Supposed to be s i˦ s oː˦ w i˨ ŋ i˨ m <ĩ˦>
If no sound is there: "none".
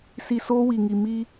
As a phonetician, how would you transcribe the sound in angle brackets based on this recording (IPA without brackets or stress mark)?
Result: i˦